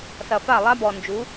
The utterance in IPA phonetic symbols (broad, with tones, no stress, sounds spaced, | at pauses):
s ɐ˨ f a˦˨ lˠ a˦ b ɔ˨ n d͡ʒ u˨˦